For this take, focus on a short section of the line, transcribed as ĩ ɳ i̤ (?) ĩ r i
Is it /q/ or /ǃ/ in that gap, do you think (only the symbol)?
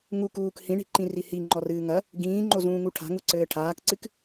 ǃ